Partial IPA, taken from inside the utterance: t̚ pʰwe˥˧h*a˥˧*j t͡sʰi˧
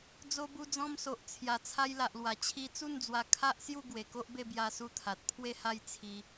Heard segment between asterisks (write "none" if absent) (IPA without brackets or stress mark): a˥˧